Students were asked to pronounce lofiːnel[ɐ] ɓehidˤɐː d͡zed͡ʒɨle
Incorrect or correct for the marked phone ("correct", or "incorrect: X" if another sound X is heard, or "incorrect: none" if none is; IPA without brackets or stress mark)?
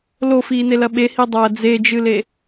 correct